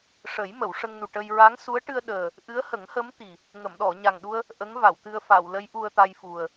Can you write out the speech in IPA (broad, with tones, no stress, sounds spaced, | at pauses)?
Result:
ʂ ə˨˩˦ j m ə˨˩˨ w ʂ ə˧ ŋ n u˨˩ ʈ ə˧ j ɹ a˧˥ ŋ s u˧˥ ə̯ ʈ ɨ˧ ə̯ ɗ əː˨˩ | ʔ ɨ˧˥ ə̯ h ə˨˩˦ ŋ h ə˧˥ m t̪ i˨˩ | ŋ ə˨˩˨ m ɗ ɔ˨˩˨ ɲ a˨˩ ŋ ɗ u˧ ə̯ | ʔ ə˧˥ ŋ v a˨˩˨ w t̪ ɨ˧ ə̯ f a˨˩˨ w l ə˧˥ j ʔ u˧ ə̯ t̪ a˧ j f u˨˩ ə̯